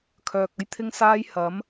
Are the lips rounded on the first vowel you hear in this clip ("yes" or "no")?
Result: yes